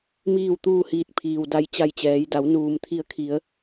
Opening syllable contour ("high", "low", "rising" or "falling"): falling